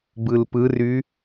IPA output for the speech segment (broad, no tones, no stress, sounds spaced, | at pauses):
b ɯ l p ɯ r y